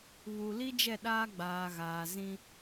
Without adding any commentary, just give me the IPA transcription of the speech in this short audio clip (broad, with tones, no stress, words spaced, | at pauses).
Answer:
βu˨li˦ d͡ʒɛ˦˨ɗaː˦ ɡ͡baː˨ɣaː˨ zĩ˦